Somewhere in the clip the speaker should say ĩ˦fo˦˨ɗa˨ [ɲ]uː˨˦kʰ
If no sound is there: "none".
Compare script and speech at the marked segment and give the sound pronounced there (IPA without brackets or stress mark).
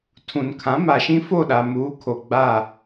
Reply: m